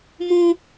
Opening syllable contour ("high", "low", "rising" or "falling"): high